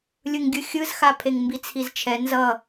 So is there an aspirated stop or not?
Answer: yes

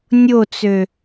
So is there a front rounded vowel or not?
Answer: yes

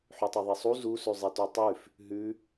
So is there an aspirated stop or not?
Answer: no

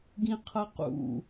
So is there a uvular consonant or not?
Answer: yes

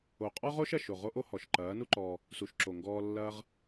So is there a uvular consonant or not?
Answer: yes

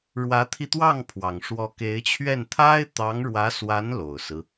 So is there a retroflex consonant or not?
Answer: yes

